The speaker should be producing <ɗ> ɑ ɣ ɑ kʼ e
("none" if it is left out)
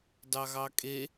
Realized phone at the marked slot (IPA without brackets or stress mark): d